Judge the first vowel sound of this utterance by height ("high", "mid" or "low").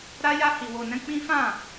low